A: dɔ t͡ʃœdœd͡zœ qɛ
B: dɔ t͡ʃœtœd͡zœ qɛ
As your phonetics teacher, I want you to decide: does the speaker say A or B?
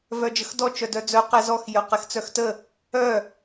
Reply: A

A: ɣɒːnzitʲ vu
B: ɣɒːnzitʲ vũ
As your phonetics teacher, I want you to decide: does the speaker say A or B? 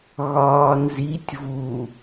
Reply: A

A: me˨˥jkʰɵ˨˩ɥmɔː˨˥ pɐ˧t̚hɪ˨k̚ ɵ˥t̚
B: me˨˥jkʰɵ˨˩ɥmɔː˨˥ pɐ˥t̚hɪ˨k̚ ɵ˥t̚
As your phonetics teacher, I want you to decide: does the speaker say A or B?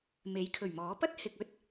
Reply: B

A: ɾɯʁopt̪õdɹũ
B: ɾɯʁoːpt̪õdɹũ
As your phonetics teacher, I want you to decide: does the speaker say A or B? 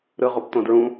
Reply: A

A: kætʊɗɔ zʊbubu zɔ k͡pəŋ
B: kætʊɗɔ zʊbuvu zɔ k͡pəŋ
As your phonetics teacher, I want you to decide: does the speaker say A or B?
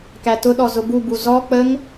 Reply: A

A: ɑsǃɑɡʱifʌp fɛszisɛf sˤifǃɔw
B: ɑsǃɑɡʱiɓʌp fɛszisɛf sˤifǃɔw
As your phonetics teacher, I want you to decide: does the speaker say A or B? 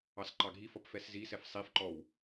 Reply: A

